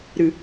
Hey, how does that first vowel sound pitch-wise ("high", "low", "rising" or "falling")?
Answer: low